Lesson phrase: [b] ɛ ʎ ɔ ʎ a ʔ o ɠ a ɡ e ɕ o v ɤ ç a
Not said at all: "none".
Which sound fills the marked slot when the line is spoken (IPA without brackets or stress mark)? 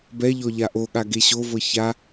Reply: b